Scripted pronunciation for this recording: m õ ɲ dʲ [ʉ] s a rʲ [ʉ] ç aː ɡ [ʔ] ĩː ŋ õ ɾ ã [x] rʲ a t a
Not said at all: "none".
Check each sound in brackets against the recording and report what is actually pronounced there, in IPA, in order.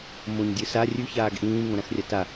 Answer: ɨ, ʉ, ʔ, x

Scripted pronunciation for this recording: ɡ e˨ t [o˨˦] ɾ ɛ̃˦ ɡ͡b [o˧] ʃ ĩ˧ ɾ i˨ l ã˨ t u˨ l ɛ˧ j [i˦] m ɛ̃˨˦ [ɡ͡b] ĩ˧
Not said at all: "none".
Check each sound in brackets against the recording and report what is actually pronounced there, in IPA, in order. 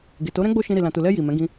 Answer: o˨˦, o˦, i˨, ɡ

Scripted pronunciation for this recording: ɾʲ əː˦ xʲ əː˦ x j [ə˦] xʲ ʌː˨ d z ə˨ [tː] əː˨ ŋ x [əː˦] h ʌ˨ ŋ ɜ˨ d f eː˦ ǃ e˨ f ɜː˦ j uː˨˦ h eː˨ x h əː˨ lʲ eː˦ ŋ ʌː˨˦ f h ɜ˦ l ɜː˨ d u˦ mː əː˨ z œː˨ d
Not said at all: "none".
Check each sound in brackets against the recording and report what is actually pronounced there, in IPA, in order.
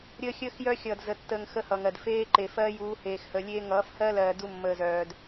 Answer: œ˦, tː, ə˦

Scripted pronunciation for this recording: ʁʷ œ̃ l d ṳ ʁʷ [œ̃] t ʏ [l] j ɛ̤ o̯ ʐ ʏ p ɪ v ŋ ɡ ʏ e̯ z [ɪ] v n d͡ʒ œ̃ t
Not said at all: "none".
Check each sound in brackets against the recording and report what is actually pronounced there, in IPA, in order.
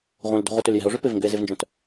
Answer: œ, l, ɪ

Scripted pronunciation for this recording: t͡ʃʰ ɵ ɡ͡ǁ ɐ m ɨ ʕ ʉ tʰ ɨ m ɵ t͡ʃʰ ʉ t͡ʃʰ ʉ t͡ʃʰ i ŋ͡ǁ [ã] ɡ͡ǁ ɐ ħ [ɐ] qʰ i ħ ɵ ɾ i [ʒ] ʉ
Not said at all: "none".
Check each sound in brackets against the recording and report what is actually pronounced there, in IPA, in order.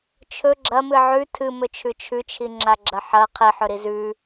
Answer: a, ɐ, z

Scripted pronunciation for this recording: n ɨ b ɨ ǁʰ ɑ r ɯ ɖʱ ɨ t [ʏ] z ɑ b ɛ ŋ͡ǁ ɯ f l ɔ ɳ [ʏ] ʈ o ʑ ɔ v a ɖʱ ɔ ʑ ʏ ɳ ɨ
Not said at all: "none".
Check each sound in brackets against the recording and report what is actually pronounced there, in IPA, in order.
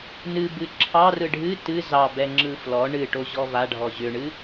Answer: ɨ, ɨ

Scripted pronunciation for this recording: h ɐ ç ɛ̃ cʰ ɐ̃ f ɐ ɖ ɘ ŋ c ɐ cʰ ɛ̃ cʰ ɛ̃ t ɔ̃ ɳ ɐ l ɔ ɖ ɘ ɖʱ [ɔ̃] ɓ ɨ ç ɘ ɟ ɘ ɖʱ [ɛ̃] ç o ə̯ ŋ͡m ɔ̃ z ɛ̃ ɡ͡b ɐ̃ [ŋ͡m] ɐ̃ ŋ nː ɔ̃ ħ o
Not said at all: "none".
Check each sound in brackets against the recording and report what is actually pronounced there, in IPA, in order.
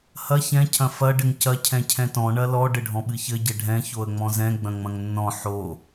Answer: ɔ̃, ɛ̃, ŋ͡m

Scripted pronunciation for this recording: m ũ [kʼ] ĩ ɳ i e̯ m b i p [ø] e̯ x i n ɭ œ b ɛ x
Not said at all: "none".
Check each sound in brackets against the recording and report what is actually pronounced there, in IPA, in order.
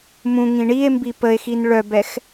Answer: ŋ, ə

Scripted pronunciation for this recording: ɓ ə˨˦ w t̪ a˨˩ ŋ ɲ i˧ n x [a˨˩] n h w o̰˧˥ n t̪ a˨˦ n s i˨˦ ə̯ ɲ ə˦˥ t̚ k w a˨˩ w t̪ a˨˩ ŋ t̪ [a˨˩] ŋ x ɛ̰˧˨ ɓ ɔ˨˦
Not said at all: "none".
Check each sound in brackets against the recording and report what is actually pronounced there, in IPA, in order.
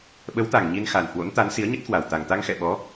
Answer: a˨˩, a˧

